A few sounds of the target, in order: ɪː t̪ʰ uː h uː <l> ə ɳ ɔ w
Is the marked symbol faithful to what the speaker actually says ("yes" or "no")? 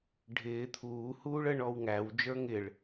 no